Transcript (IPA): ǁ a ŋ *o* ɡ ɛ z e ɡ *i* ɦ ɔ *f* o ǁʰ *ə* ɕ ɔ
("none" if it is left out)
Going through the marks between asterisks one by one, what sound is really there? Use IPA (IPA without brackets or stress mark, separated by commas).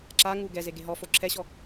u, e, f, ɛ